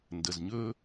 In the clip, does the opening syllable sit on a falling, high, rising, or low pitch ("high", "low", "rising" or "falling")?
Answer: low